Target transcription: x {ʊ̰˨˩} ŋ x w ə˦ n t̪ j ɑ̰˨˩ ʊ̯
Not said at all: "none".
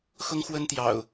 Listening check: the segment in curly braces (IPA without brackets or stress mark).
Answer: ʊ˦